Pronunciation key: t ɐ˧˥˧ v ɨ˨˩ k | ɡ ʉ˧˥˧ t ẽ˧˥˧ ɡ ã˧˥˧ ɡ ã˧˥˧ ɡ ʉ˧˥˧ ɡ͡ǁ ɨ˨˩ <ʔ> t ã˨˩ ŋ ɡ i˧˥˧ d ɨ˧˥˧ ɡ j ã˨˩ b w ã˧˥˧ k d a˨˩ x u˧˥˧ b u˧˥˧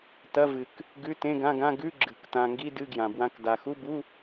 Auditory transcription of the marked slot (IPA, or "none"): k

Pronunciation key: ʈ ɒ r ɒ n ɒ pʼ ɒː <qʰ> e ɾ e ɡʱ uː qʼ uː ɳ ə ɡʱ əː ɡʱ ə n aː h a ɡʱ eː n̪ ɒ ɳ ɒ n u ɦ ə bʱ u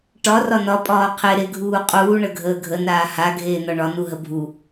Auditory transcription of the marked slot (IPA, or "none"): qʰ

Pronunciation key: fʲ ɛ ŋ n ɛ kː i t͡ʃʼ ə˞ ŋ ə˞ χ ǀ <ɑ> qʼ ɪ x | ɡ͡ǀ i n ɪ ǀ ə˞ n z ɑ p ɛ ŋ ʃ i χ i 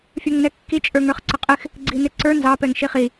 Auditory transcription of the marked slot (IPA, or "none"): ə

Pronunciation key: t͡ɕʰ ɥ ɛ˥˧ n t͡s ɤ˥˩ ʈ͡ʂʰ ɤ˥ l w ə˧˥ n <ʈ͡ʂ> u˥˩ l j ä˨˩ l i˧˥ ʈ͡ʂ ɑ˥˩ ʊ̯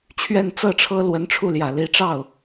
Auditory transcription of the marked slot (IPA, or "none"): ʈ͡ʂʰ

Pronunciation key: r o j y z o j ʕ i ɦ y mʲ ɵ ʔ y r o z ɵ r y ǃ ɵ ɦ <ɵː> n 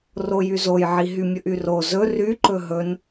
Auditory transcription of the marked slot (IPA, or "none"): ɵ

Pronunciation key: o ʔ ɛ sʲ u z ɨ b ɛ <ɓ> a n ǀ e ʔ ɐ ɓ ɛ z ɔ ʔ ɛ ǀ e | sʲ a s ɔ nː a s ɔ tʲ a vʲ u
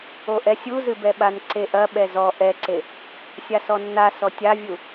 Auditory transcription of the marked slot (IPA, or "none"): ɓ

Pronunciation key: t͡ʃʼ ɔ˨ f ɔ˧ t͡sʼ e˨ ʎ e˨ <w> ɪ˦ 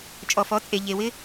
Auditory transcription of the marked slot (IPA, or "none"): w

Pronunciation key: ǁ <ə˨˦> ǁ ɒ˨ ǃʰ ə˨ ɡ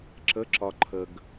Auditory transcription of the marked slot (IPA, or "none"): ə˨˦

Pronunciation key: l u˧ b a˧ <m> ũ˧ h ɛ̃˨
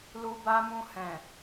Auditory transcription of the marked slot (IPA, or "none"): m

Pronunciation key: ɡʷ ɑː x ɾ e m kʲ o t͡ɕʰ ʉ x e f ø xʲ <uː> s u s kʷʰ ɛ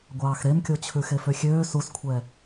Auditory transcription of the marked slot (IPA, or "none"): øː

